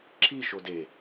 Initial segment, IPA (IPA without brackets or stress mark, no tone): ǁ